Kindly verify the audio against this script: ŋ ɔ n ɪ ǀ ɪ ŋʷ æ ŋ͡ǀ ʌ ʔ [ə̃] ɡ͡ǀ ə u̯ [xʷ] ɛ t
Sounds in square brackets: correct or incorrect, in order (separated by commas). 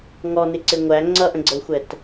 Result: correct, correct